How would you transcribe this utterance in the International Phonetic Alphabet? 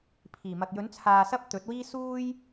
pʰ iː˨˩ m ɐ˨ k̚ j ɵ˨˥ n t͡sʰ aː˧ s ɐ˥ p̚ t̪ ɵ˨˥ t̚ w iː˥ s uː˥ j

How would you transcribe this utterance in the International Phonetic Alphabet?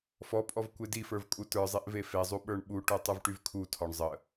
f ɔ pʼ ɔ v kʷ e d i f ə˞ v kʼ u t ə˞ zˤ e ʔ v e f e zˤ u ɓ ə˞ ɳ ɓ u ʈ u tˤ u v ʈ y v kʰ u tʰ ɔ ɳ zˤ ə

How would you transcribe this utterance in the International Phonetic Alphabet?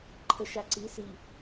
ǃʰ ə ʃ a ǀ i s i

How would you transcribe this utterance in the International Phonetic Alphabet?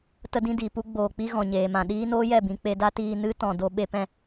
t ə˧ d ĩ˧ d i˨ p u˧ ɡ͡b oː˨ k͡p i˧ ɣ ɔ̃˨ ɲ eː˨ m ã˨ ɗ iː˦ n oː˦ j ɛ˦˨ b ĩ˧ k͡p e˧ d a˦ t iː˧ n ɨ˦ t ɔ̃˨ d o˧ ɓ e˦ p ɛ̃˦

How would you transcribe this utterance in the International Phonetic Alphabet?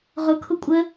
ʁ ʊ kʰ ʊ kʷʼ ə

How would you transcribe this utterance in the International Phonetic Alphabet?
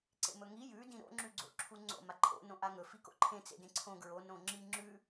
ǀ ḛ m ɵ ŋ i j ʉ d ĩ ɾ o̰ ŋ͡ǁ ʉ ɡ͡ǀ o̰ ǁʰ u ŋ͡ǀ o̰ m a ǃʰ o̰ n õ ʔ a ŋ ɵ f i k o̰ ǃʰ ẽ t͡s ḛ d ẽ ǀʰ õ ɡ ɹ o n õ ŋ͡ǁ i ŋ͡ǁ ʉ

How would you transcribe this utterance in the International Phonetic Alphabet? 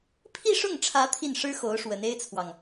pʰ i˥˧ ʂ ʊ˥˩ ŋ ʈ͡ʂʰ ä˧˥ t̪ʰ i˥˩ n ʂ ɻ̩˥ x o˧˥ ʊ̯ ʂ w ə˧˥ n e˥ ɪ̯ t͡sʰ w ɑ˨ ŋ

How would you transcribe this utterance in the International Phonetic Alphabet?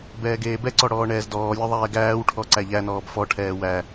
b ɛː ɡ eː b ɛ ǀ ɔ ɽ ɔː ɳ ɛː z d ɔː lʲ ɔ ðˤ ɛː ɡ æː w ʈʰ ɔ ǀ æ ʎ æ n ɔː b f ɔ ʈʰ ɛː w æ

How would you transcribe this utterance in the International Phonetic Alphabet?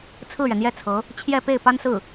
t͡sʰ ɹ̩˥˩ ɥ ɛ˩ n̪ j ɛ˥˩ t͡sʰ ɤ˧˥ | t͡ɕʰ j ɛ˥˧ p e˥˩ ɪ̯ p a˥ n s ɹ̩˥˩

